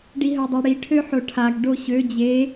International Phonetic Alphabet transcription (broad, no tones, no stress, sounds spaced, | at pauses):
ɖ i ɦ œ dˤ œ ɽ i ʈʰ ø ħ o ʈʰ a ɡ ɖ o ɕ ø d͡ʑ e